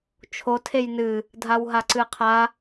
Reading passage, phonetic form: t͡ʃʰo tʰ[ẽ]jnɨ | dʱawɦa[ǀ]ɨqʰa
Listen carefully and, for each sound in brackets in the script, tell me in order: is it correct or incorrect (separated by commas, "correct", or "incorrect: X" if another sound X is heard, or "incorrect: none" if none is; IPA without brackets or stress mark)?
incorrect: e, correct